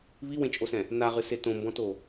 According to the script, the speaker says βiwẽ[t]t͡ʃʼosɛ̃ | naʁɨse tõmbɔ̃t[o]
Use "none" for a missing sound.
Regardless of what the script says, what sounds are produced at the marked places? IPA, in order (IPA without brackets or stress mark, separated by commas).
none, o